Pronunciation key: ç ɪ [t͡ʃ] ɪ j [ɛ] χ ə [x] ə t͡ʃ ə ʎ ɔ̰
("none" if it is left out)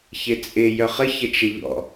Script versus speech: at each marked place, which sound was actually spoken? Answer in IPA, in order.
t͡sʼ, œ, ç

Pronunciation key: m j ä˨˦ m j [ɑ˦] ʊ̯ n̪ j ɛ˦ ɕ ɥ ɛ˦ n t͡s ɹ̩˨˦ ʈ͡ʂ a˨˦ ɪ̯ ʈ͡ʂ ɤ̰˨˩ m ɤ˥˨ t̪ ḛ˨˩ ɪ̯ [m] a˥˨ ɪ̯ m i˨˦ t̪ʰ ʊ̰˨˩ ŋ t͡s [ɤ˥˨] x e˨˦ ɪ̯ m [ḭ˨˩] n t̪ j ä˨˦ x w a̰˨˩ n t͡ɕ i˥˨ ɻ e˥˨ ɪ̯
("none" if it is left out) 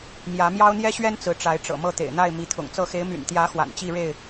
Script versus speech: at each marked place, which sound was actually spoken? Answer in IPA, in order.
ɑ˦, n̪, ɤ˥˨, y̰˨˩

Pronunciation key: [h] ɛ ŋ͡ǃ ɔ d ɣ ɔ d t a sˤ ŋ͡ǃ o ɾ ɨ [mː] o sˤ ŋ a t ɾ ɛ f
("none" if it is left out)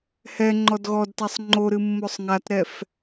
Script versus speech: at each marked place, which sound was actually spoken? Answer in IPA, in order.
h, mː

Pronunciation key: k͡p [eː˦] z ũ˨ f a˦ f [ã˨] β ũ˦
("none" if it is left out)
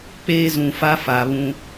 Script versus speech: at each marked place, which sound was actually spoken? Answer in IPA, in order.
eː˦, a˨

